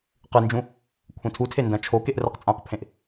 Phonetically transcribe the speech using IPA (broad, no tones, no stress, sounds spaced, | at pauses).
q ɨ n d͡ʒ ũ | kʷʰ ẽ tʰ u tʰ e n d ɐ̃ t͡ʃʰ o k e ʔ r ɐ q t͡sʼ ã q pʰ ẽ ʔ